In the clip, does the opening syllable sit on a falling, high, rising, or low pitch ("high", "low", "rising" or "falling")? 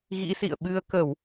rising